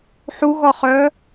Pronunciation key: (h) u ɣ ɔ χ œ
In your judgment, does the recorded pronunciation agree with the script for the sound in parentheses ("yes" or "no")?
no